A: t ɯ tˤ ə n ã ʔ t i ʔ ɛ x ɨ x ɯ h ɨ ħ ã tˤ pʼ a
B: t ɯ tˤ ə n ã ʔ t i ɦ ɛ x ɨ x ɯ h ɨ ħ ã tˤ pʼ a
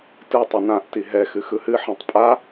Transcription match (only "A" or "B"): B